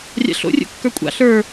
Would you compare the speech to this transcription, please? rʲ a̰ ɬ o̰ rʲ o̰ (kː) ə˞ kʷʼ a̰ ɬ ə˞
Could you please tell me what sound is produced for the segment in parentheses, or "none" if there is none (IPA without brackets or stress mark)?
kː